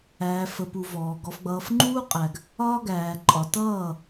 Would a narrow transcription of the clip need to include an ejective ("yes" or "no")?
yes